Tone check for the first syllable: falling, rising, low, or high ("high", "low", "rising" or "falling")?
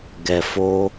low